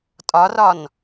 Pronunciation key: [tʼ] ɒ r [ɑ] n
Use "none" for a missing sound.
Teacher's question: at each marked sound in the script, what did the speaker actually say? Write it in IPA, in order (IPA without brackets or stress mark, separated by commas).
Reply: tʼ, ɒ